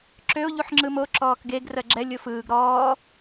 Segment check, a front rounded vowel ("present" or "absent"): present